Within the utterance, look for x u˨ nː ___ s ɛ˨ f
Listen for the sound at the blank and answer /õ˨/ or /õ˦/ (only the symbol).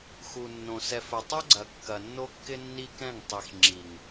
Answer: õ˨